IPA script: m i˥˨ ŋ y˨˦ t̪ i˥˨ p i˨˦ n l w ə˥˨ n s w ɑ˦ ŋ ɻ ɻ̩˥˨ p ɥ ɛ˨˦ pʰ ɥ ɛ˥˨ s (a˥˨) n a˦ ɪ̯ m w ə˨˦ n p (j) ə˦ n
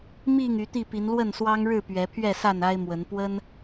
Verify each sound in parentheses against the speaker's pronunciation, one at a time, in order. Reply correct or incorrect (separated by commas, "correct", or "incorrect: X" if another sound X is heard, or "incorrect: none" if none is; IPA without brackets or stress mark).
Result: correct, incorrect: w